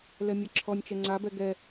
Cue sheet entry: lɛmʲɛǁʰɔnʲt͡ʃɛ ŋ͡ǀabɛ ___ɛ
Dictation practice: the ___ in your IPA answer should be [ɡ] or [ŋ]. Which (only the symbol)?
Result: ɡ